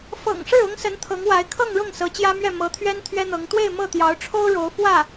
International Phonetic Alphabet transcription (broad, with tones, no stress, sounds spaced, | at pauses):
f ɤ̰˨˩ ŋ ʂ ɻ̩˥˩ ʊ˥ ŋ s ə˧˥ n t̪ʰ ɤ˧˥ ŋ w a˧˥ ɪ̯ kʰ ɤ˥˧ ŋ ɻ ʊ˥˩ ŋ s ɤ˧˥ t͡ɕ j ä˥ m ɥ ɛ˥˩ m ɤ˧˥ t̪ʰ ɥ ɛ˥ n t̪ʰ ɥ ɛ˥ n̪ ɤ˧˥ ŋ t̪ w e˥˧ ɪ̯ m ɤ˥˩ t̪ j ɑ˧˥ ʊ̯ ʈ͡ʂʰ o˥ ʊ̯ ɻ o˧˥ ʊ̯ f w ä˥˩